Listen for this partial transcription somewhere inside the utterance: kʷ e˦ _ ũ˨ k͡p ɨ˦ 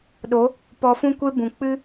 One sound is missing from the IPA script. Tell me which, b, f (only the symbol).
b